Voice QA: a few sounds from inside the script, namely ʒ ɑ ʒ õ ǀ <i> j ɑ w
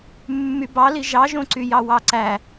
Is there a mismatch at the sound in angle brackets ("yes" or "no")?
yes